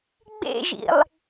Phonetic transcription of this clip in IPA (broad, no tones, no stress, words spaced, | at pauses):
ɡ͡bḛʒḭlˠ